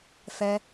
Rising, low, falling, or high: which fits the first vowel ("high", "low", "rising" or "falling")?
high